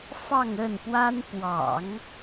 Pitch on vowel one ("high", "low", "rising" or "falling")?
falling